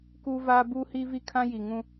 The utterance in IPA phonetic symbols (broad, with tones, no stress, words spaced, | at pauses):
kuː˦vaː˦ buː˦hiː˦vi˦kʰã˦ ji˨ŋũ˦